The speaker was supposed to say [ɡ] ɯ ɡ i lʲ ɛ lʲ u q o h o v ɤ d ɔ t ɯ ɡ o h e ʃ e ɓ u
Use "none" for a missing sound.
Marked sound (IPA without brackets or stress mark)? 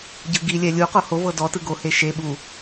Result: ɟ